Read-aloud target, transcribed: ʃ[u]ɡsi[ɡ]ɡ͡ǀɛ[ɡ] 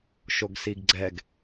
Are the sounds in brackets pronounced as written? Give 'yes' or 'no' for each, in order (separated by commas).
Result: no, yes, yes